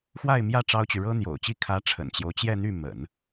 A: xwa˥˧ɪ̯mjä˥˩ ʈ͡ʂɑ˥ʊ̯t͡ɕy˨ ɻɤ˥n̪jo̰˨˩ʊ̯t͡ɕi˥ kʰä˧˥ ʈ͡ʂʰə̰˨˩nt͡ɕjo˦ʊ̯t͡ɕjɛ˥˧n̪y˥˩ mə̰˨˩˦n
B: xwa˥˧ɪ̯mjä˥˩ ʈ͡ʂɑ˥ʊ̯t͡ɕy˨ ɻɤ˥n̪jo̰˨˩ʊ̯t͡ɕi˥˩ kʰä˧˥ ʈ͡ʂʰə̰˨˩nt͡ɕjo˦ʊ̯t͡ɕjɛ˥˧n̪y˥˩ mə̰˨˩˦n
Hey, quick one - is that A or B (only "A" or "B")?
B